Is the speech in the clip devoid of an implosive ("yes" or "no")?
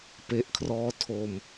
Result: yes